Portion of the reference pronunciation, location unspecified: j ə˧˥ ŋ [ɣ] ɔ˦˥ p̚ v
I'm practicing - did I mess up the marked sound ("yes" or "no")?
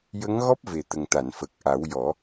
no